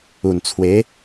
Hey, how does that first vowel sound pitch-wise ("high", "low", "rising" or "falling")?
low